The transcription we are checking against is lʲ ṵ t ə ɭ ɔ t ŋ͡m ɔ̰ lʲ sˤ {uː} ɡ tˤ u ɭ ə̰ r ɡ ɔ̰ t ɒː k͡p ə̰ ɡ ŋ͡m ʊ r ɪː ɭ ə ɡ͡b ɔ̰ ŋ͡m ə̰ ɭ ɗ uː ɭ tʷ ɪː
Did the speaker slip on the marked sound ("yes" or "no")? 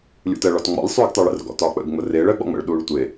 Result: no